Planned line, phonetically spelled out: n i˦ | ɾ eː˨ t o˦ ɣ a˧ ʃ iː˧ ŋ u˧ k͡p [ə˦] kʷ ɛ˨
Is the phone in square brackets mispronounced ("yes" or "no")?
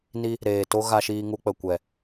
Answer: yes